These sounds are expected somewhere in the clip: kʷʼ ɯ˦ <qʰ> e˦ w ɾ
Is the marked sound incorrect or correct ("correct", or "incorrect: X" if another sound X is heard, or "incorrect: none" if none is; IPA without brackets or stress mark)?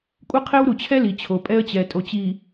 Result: correct